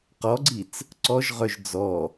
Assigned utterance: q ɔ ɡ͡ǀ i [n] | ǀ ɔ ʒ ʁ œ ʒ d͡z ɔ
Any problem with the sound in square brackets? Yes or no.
yes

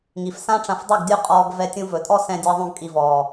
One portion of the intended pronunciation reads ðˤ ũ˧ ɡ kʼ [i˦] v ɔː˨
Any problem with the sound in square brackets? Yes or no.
yes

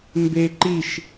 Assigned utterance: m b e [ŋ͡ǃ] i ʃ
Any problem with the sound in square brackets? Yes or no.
yes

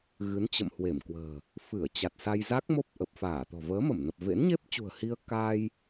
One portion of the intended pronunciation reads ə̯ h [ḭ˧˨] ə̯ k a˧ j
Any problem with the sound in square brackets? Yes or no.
yes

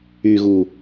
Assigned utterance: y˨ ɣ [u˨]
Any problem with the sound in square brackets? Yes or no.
no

